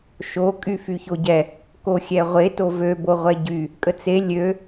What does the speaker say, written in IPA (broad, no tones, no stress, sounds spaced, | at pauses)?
ʃ o kʼ y f y ç o ɟ ɛ | k o xʲ ɛ ʁʷ e t o v ø b o ʁʷ ɛ ɟ y | kʼ ə t͡s e lʲ ø